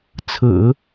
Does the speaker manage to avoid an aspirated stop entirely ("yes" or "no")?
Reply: no